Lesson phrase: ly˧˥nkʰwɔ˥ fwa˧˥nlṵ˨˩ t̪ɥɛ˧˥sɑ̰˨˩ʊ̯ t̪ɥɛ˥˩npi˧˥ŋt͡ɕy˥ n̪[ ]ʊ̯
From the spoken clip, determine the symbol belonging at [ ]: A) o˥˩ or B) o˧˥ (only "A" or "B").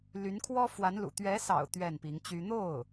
A